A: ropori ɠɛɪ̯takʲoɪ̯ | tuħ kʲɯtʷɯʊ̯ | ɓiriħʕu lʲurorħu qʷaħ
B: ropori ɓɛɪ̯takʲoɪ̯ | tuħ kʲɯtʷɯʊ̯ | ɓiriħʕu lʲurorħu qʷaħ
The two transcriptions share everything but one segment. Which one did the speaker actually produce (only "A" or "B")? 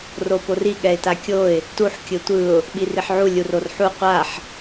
A